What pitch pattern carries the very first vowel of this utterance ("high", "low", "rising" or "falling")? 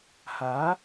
rising